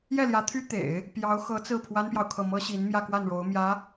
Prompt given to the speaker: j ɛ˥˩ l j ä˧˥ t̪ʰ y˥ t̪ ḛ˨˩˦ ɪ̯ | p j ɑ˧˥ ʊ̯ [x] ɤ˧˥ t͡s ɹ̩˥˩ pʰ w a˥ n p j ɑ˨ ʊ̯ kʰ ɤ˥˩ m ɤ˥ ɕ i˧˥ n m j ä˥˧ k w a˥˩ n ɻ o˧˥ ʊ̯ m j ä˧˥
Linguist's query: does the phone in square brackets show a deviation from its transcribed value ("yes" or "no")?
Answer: no